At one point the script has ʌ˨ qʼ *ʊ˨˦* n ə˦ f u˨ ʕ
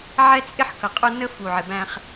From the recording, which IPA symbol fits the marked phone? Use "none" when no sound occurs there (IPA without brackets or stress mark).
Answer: ʊ˦